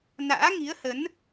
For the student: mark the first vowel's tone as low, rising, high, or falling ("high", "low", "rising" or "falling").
rising